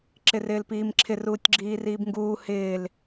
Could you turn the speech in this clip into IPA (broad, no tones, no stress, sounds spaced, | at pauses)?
ǁ ɪ r ɪː l p iː m ǁʰ ɪ r uː tʲ ɡ͡ǁ iː r iː b ŋ ɡ uː h ɪː l